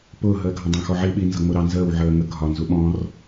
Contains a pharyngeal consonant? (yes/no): yes